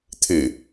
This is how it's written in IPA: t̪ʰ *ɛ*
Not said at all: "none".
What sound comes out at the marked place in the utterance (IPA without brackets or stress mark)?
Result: ɨ